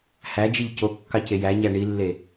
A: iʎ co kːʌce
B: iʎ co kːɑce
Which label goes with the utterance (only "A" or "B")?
B